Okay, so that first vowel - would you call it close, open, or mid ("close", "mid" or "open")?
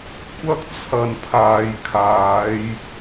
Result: open